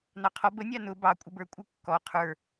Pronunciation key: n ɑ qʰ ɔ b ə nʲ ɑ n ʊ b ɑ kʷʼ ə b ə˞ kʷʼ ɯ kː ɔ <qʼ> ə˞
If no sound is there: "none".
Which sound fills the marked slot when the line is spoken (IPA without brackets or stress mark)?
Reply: qʰ